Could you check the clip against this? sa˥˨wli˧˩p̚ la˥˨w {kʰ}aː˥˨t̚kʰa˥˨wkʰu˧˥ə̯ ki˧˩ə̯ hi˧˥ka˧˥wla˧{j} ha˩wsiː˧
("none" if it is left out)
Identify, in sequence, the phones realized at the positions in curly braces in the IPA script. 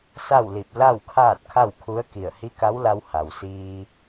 kʰ, w

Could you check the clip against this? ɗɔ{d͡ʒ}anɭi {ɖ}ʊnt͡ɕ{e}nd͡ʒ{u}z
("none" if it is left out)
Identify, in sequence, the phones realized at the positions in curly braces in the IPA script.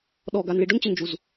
ɡ, ɖ, e, u

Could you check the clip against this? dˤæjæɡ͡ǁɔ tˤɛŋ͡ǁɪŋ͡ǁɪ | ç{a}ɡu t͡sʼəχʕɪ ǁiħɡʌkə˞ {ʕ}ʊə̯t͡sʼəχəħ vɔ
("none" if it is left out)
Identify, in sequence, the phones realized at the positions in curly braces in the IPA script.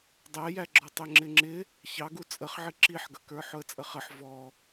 ɑ, ħ

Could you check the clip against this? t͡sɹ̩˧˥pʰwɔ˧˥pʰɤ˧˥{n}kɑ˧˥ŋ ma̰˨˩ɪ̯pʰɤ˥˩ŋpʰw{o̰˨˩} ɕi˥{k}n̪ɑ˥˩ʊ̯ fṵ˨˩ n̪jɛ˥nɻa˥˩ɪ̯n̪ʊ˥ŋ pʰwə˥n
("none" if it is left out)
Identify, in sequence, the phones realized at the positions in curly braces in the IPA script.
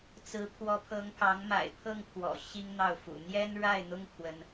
ŋ, ɔ̰˨˩, ŋ

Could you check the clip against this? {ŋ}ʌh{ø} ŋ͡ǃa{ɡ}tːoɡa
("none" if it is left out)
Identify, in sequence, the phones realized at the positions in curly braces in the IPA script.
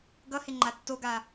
ɡ, e, none

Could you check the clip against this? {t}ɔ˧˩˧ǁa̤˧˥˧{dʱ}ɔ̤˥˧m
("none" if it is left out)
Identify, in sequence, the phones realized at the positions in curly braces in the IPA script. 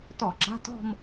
t, t

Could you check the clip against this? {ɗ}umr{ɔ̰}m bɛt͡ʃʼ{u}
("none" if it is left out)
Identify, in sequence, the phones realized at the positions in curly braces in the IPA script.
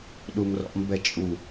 ɗ, ɔ̰, u

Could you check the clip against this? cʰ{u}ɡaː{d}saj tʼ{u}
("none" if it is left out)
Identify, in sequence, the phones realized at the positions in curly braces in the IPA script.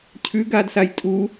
ʉ, d, u

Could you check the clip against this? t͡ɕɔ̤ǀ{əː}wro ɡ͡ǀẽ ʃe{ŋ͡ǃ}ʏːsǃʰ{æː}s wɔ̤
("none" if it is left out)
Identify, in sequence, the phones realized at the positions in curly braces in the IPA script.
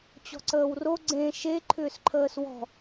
əː, ǃʰ, əː

